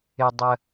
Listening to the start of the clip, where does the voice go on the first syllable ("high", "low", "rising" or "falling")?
low